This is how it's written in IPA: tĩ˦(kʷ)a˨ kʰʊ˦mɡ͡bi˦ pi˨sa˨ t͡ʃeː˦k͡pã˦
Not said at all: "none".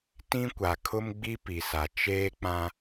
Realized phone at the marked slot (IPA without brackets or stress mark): kʷ